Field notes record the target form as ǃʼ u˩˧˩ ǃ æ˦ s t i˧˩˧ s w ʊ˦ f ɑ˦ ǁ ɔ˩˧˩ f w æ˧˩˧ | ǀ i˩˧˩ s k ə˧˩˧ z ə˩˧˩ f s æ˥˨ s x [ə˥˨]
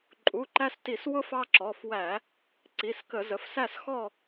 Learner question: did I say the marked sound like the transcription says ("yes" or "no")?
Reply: no